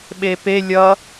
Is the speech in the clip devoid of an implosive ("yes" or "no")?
no